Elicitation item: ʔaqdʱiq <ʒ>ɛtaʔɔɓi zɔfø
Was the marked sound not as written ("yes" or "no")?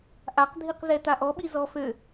yes